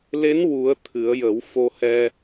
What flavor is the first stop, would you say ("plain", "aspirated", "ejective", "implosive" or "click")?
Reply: aspirated